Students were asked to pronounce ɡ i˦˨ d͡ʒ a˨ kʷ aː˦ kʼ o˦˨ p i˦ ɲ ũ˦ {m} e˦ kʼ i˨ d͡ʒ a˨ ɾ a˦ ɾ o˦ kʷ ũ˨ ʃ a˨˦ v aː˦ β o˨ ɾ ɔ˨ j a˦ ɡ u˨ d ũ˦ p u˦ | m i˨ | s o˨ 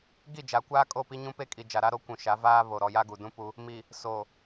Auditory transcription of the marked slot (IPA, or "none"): p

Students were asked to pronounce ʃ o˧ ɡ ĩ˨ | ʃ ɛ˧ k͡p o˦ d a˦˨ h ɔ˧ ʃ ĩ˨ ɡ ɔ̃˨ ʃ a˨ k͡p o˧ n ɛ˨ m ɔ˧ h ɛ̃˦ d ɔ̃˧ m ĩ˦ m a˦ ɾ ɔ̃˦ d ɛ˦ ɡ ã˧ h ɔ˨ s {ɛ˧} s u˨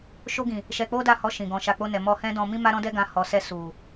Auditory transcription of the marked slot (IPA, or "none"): ɛ˧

